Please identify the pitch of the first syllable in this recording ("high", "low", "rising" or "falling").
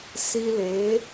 high